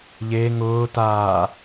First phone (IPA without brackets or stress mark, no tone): ʎ